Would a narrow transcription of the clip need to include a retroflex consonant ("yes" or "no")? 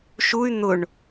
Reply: yes